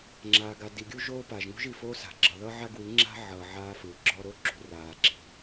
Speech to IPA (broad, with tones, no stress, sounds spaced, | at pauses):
ŋ͡ǁ aː˨ ɡ a˨ d i˨ ɡʲ u˦ ʒ oː˦ p a˨ ʒ ŋ ṳ˦ ʒ i˨ f oː˦ s a̤˨ ɡ͡ǁ ʌ˨ ð ʌ˦ ʕ a˦ ɡ w i˨˦ ŋ͡ǁ a̤˦ ʕ ʌː˨ ʕ aː˦ f ɯː˨ ɡ͡ǁ ɔ˦ ɾ o˦ ǁ ṳ˨ r aː˨ ǁ i̤˦˨